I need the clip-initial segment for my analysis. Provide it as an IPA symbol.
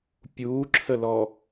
pʲ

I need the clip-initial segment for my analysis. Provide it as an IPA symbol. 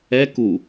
ɛ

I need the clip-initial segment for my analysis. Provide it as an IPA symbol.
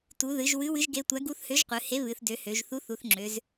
t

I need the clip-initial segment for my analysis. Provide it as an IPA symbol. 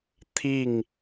t̪ʰ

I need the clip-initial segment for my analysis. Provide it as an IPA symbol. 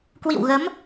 k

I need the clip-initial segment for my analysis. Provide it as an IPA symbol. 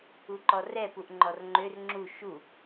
u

